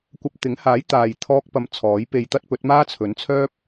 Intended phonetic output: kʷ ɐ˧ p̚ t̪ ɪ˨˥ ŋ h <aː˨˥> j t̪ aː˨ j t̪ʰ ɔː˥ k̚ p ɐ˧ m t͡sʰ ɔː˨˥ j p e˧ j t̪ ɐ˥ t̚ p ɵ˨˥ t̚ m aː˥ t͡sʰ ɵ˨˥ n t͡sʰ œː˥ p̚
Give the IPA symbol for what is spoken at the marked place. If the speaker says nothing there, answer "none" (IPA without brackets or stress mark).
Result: aː˨˥